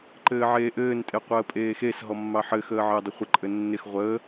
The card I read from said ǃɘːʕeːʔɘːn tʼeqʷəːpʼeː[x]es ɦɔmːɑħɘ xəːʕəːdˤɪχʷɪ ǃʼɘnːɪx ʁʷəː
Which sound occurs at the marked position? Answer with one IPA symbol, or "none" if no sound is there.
x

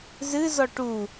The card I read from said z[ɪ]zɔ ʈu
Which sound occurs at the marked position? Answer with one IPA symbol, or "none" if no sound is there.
ɨ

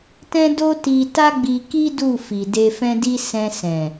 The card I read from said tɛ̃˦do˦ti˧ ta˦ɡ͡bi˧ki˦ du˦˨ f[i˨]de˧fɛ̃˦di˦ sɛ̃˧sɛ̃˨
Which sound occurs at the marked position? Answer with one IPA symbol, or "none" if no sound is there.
i˨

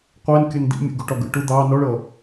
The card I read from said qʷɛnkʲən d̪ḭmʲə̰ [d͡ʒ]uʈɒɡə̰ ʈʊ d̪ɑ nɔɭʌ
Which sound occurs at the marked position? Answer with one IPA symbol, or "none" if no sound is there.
ɡ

